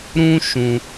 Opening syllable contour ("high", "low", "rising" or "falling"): high